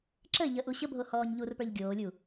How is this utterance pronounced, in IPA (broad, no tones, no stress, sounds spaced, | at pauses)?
ǁ ə ɪ̯ ʎ ə ʔ u ɕ ə bʱ o h ɔː ɲ ʎ u r p ə˞ ʎ ɡʲ oː lʲ u